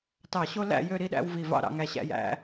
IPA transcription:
t ɑ˧˩ ɕ o˥ l æ̰˥˧ j ø˥˧ ɾ i˥ ɗ æ̰˥ w v i˧˩ v ɑ̰˥˧ ɾ ɑ̰˧ ŋ æ˧ ɕ æ̰˥˧ j æ̰˥

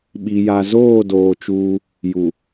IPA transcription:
ɓ i˨ j a˨ z oː˦˨ d oː˨ t͡ʃ uː˦ | j u˨

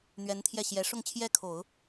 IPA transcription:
n̪ ɥ ɛ˧˥ n t̪ʰ j ɛ˥˩ ɕ j ɛ˧˥ ʂ ʊ˥˧ ŋ t͡ɕʰ j ɛ˥˩ kʰ o˨˩˦ ʊ̯

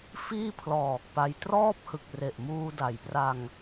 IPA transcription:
f iː˥˩ pʰ l ɔː˨˩ k̚ p a˧ j t r ɔː˥˩ p̚ h ɯ˨˩ k̚ r e˨˩ ʔ m uː˧ d a˩˦ j p r a˧ ŋ

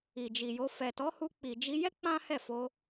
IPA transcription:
i˨ d͡ʒ i˨ j o˧ f ɛ˨ t ɔ˨˦ h u˧ k͡p i˨ d͡ʒ i˧ j ɛ˦ k͡p ã˦ h ɛ˦˨ f o˧

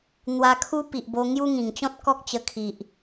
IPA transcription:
n̪ w a˧ kʰ u˦ p i˨ ʔ b o˧ ŋ j u˦ ŋ ĩ˨˩ ŋ t͡ɕ ɔ̃˦ t̚ k ɔ˦ k̚ t͡ɕ ə˧ kʰ i˨ ʔ

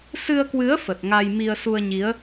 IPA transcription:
s ɨ˧ ə̯ k w ɨ˨˦ ə̯ f ə˨˩ t̚ ŋ a˧ j m i˧ ə̯ s u˧ ə̯ ɲ i˨˦ ə̯

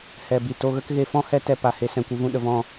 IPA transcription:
h ɛ˨ b i˨ t o˧ ɣ ə˦ k ɣ e˧ f ɔ̃˦ h ɛ˦ t ɛ˧ p a˨ h e˧ s ɛ̃˨ kʷ ɨ˧ v ũ˧ ɗ ə˨ v ɔ̃˦˨

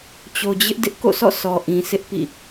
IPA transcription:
t͡ɕ o˨ d͡ʑ ɪ˦ ʔ d ɪ˦ ʔ k o̰˦˨ sʰ ɔ̰˦˨ sʰ ɔ˨ ʔ ĩ˨ sʰ ɪ˦ ʔ p ḭ˦˨

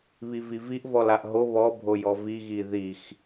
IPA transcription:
β i v i v i ʔ v ɔ l a ʔ ɦ o β ɔ bʱ o j ɔ v i ɣ i ð i x

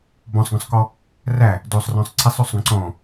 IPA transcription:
b ɔ̃ sˤ ɡ ɔ̃ sˤ k ɔ | r æ | d o sˤ r ɔ̃ sˤ ǀʰ e sˤ o sˤ ɡ ɔ̃ ǀ ɔ̃

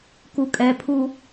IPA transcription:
k u kʼ ɛ pʰ u

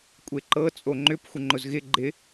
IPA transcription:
kʷʼ e ǃ ɤ t͡sʼ o ŋ͡ǃ ʏ p xʷ ɪ ŋ͡ǃ ʊ z ɣ ɪ ɡ͡ǃ ɪ

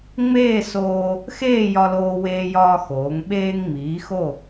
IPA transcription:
ŋ͡m eː˥˧ s oː˧ | x eː˥˧ j ɒ˧ l oː˧ w eː˧ j ɒː˧ x oː˩˧ ŋ ɓ eː˧ ŋ ŋ͡m iː˩˧ x o˧˩

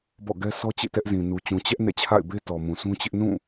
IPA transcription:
b ɔ̰˦˨ ɡ ɛ˦ s ɔ˦ t͡ɕ ḛ˦˨ t ɛ˦ ʔ z ĩ˨ n u˨ t͡ɕ ũ˨ t͡ɕ ɛ˦ ʔ n ɛ̰˦˨ t͡ɕʰ a̰˦˨ ɪ̯ b e˦ t ɔ˨ m ũ˨ s ũ˦ t͡ɕ ɪ˦ ʔ n ũ˦˨

